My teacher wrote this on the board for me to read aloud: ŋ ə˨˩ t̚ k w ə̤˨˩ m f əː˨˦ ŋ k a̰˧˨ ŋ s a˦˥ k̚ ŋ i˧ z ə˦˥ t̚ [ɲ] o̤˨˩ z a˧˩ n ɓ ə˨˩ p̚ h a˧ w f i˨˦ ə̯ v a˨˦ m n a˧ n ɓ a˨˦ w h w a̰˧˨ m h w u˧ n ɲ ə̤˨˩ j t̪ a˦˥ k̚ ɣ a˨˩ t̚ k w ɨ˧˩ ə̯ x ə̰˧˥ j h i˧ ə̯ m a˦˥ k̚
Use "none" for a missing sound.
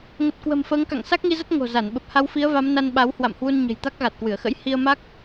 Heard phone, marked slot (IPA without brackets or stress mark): ŋ